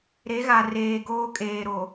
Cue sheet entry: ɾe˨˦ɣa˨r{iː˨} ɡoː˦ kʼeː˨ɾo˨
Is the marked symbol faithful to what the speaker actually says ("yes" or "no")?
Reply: no